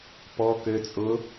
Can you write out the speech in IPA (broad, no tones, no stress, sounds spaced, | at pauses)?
p ɔ k ø t͡sʼ ʊ